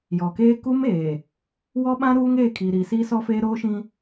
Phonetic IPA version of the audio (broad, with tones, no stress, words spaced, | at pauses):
jɔ˨keː˦ ku˦meː˨ | wɔ˦ɓã˦ ɾuː˦ŋeː˦˨ kʰiː˨ɾiː˨siː˦ sɔ˦feː˦ ɾoː˦ʃĩ˦